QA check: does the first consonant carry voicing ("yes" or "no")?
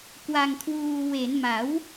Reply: no